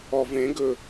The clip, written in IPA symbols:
ɔ v ẽ ɡ ɵ

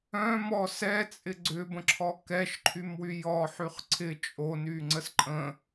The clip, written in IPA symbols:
œ̃ m ɔ s ɛ t͡sʼ ɪ ɡ͡ǀ ʏ b ə̃ ǁʰ ɔ k ɛ ʃ ǃʰ y m w y j ɔ ħ y χ ǀʰ ɪ t͡ʃʼ o n y ŋ͡ǀ ə s ǃʼ ə̃

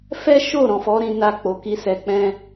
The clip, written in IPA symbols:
f ɛ˦ ʃ o˦˨ ɾ ɔ̃˨ f ɔ˨˦ ɾ ĩ˧ n a˧ k͡p o˨ k i˧ s ɛ˧ k͡p ɛ̃˦

